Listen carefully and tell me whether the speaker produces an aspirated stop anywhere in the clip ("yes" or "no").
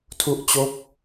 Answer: yes